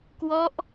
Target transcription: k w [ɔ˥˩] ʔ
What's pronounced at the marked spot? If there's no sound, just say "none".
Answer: ɔ˦˥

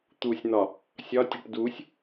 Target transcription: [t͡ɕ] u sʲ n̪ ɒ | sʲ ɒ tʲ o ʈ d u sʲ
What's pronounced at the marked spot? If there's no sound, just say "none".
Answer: t̪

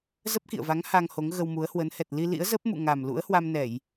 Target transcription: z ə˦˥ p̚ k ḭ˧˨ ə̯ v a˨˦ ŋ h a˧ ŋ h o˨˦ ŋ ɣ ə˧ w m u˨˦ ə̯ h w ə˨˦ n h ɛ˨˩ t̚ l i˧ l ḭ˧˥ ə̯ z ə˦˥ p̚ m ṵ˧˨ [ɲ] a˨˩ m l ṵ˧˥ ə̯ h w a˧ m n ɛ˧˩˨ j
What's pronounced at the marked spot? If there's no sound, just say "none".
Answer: ŋ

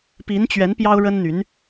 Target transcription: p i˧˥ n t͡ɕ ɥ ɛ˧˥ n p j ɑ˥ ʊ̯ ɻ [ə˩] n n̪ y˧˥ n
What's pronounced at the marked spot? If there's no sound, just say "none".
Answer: ə˥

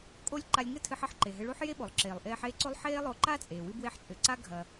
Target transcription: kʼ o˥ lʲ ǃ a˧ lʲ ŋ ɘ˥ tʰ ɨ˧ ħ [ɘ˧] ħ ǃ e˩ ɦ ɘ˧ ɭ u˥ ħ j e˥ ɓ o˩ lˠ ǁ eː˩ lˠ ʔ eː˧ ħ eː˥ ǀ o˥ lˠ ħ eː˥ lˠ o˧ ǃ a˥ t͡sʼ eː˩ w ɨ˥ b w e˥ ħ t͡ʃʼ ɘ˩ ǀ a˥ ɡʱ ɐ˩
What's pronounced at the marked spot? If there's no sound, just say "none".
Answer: ɘ˥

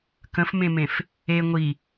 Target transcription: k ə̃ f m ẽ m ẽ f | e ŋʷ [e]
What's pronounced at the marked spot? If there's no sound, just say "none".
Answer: i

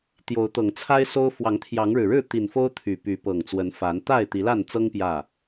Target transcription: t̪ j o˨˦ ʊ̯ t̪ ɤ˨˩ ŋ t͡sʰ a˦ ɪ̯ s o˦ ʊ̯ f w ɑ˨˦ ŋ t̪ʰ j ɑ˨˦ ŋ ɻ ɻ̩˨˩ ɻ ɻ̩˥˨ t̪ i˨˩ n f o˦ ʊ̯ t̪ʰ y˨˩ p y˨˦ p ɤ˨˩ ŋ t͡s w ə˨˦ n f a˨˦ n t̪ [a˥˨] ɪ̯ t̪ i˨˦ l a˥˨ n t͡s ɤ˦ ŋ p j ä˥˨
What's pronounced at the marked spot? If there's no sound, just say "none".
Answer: a˥˨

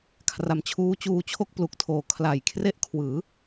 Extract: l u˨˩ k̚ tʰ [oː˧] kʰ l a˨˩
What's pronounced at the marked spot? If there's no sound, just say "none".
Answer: oː˨˩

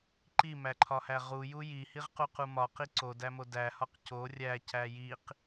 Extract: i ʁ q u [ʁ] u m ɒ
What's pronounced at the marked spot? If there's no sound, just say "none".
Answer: q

